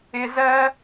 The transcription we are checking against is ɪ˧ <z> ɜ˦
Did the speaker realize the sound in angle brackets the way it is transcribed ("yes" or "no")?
yes